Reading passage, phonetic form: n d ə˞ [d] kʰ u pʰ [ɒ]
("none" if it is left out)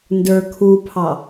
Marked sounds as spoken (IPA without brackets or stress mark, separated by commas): none, ɑ